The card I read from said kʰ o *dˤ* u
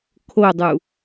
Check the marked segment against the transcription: correct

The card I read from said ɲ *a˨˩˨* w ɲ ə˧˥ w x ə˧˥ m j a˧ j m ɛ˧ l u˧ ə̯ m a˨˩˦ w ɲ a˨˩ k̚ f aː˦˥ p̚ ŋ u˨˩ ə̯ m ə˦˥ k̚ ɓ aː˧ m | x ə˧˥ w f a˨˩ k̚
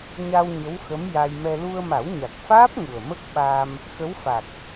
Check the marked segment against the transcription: incorrect: a˧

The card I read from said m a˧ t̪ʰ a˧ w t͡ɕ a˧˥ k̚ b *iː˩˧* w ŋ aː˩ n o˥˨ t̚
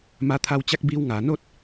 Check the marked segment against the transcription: incorrect: iː˧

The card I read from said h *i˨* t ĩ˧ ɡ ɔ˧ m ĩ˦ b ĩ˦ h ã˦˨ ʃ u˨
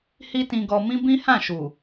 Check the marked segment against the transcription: incorrect: i˦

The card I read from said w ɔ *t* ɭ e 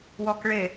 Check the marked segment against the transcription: incorrect: k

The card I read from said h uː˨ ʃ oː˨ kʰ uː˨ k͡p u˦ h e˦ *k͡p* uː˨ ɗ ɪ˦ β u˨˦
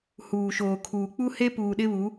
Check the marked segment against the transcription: incorrect: p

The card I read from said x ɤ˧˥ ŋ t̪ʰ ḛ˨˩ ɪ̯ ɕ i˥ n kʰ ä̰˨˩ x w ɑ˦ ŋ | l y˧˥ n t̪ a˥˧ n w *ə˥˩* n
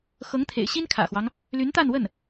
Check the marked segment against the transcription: correct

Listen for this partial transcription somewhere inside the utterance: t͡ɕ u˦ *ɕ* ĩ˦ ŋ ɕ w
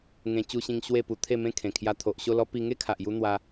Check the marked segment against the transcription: correct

